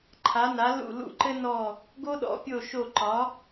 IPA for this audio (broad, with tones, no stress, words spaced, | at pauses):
ǃʰa˨˥na˨˥ lṵ˦˨lṵ˦˨ǃɘ˥nɔ˦˨ | ɡo˥ɗɔ̰˨˥pʲo˦˨ ʃo˦˨ǃɒ˨˥